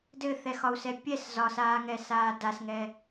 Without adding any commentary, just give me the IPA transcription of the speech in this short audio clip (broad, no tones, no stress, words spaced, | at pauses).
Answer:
dɘθɛxɒu̯sɛ pʲɛs zɒsaːŋɛsaː dasŋɛ